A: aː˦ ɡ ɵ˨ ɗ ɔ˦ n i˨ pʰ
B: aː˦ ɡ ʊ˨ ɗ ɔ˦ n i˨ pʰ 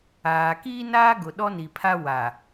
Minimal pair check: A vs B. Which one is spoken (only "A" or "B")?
B